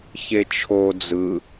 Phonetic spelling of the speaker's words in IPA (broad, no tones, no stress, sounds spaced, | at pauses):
ç e t͡ʃʰ o d͡z ɯ